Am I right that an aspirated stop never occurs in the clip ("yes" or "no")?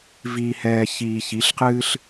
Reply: yes